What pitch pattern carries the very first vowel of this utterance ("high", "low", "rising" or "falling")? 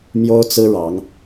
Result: high